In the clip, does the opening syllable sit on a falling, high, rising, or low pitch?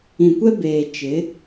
low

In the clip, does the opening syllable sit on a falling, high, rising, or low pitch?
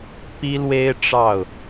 high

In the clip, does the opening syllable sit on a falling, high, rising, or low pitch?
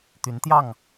rising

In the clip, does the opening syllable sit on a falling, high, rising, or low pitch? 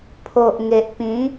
low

